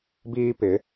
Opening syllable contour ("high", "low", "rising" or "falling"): high